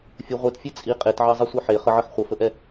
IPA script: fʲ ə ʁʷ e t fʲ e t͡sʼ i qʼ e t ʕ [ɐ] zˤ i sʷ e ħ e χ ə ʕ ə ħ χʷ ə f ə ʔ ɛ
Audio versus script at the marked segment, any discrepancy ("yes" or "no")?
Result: yes